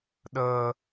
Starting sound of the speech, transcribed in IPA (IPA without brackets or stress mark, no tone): ɗ